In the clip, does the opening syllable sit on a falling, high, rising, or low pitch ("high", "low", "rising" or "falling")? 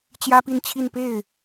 high